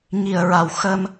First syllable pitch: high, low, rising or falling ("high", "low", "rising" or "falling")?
low